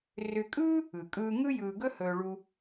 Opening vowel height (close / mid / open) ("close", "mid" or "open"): close